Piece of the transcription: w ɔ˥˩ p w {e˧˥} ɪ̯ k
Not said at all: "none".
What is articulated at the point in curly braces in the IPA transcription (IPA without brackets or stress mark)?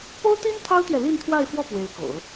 e˧˥